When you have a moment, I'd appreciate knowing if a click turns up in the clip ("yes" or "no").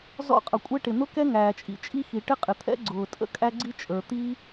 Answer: yes